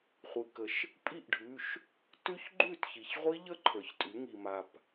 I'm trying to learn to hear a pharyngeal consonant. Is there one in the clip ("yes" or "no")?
no